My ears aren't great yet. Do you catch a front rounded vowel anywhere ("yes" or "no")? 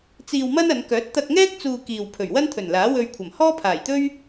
yes